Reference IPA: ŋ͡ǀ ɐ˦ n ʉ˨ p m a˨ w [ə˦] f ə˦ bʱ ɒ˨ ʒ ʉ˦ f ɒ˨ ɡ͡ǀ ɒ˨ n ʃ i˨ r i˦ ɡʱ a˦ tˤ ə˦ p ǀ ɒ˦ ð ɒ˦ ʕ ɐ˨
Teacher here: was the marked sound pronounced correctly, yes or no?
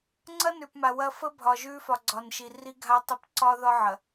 no